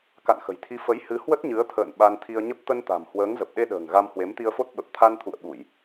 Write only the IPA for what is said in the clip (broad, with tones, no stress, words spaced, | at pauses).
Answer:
ka̰˧˨nxə̤˨˩jt̪ʰi˨˦ fə˨˦j hɨ˨˦ hwə˦˥t̚ɲɨ˨˦ə̯t̪ʰə̰ː˧˨n ɓa˧nt̪ʰi˧ə̯ɲə˦˥p̚ t̪ə˧nt̪a̤˨˩m hwəː˨˦ŋzə˨˩p̚ɗe˧ɗə̤ː˨˩ŋ ɣa˧mhwe˨˦mt̪i˧ə̯fo˦˥t̚ ɓə˨˩p̚t̪ʰa˧nt̪ʰṵ˧˨ə̯ ɓu˧˩˨j